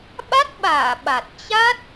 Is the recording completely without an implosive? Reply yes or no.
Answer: no